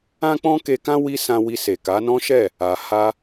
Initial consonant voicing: voiceless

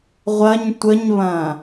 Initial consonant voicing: voiced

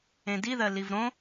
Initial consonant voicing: voiced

